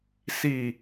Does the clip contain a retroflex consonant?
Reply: no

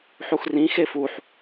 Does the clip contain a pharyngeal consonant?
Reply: yes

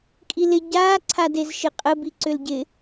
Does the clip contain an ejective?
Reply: yes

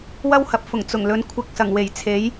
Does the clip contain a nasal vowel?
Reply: no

